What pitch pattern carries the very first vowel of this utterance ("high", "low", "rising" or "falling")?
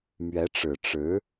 rising